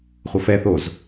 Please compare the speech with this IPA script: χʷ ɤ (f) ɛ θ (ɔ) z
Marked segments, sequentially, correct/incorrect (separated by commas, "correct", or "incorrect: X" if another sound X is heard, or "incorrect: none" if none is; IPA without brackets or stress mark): correct, incorrect: o